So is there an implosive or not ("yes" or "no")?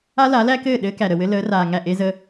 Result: yes